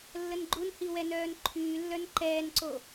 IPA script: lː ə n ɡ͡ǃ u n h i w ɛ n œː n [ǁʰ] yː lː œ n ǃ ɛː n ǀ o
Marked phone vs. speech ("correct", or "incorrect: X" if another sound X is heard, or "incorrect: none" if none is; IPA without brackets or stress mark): incorrect: ǃʰ